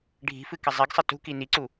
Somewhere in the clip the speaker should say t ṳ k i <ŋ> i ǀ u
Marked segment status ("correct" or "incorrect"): incorrect